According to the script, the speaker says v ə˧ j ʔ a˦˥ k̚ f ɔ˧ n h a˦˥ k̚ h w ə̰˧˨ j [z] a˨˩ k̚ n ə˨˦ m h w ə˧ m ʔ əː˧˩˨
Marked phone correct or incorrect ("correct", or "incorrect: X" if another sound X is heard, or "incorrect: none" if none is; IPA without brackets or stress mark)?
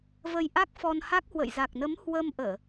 correct